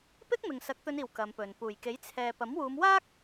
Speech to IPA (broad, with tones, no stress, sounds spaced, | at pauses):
p ɪ˥ k̚ m ɪ˨ ŋ s ɐ˨˥ k̚ t̪ ɵ˨˧ n iː˨˩ w k ɐ˨˧ m p ɵ˨ n p uː˨˩ j k e˨˥ j t͡sʰ ɛː˨ p ɐ˨˥ m w uː˨˧ m w aː˥ k̚